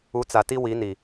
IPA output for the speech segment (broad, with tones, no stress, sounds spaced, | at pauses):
u˨˦ t͡s a˨ t i˦ w i˨˦ n i˨